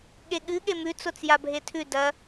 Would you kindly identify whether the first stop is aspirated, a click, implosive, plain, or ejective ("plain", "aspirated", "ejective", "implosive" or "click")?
implosive